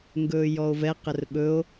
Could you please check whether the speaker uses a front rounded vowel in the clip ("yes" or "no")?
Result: no